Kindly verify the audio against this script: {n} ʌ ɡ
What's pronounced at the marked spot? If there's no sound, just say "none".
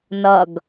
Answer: n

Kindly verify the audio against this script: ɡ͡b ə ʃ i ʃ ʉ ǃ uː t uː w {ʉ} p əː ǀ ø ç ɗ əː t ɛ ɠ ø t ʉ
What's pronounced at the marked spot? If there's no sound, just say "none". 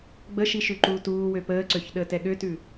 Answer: ø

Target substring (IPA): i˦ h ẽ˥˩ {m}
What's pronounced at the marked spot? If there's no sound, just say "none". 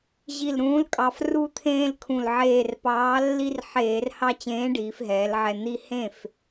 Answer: f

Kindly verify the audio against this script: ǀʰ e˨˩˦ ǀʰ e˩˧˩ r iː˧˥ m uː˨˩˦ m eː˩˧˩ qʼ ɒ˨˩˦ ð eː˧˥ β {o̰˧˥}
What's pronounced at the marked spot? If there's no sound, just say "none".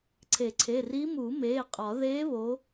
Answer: o˧˥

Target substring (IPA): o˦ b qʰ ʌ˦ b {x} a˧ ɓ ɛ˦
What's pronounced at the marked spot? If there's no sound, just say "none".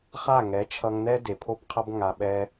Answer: ŋ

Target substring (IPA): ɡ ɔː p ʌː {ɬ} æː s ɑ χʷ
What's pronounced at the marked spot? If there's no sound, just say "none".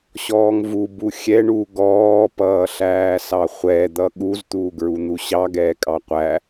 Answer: ɬ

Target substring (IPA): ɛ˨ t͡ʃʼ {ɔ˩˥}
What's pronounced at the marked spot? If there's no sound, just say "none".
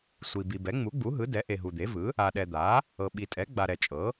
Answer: ɤ˩˥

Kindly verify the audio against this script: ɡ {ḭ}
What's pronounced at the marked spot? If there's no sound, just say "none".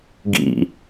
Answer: ḭ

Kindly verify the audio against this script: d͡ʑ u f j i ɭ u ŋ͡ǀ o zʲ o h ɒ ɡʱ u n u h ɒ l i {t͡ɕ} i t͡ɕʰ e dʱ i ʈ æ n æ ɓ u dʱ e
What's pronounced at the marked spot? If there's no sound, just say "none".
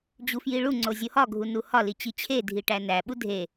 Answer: t͡ɕ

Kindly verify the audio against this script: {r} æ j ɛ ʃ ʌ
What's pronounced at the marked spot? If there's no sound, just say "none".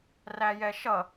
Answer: r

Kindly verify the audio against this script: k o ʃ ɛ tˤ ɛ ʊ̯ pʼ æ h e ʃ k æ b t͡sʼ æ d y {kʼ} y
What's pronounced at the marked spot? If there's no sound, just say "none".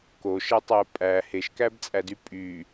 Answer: pʼ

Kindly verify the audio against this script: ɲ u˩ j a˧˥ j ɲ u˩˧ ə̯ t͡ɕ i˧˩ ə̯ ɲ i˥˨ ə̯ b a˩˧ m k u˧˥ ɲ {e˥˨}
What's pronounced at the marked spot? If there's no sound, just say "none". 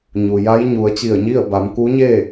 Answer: e˥˨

